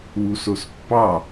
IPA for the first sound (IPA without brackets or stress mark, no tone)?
w